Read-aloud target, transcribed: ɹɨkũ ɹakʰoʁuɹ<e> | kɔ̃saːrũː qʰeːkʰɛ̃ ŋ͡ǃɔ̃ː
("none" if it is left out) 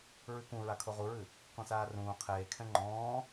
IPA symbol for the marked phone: ɨ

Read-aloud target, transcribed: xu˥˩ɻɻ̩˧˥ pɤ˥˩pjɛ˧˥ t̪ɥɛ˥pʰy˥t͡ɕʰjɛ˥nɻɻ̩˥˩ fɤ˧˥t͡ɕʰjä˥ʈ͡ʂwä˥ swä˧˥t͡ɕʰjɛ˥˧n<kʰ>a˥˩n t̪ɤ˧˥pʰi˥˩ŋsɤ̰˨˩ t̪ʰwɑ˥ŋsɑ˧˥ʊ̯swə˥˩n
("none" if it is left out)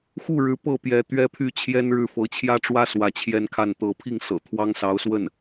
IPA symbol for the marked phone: kʰ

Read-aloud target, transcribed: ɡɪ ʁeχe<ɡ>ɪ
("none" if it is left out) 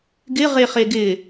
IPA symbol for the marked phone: ɡ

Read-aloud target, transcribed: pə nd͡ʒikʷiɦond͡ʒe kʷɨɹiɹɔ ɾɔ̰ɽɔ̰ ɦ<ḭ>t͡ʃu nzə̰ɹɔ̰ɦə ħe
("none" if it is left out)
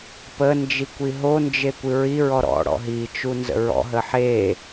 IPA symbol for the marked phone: i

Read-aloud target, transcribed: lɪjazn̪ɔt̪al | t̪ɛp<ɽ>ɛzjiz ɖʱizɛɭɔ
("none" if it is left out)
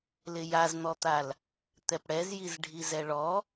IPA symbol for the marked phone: ɽ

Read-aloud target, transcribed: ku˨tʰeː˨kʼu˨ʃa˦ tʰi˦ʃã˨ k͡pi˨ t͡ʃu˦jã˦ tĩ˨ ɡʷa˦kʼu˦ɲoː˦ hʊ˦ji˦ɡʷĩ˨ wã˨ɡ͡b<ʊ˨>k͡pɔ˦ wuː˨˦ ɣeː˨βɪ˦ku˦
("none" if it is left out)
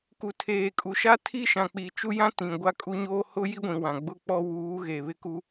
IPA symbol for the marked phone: ʊ˦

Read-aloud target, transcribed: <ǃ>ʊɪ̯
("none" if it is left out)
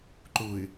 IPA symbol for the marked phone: ǃ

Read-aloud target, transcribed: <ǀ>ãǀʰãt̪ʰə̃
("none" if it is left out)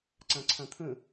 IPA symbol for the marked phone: ǀ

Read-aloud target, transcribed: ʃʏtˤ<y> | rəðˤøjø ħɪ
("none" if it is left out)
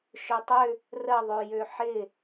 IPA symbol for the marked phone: ʏ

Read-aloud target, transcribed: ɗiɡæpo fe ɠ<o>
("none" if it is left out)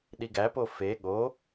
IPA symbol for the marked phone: o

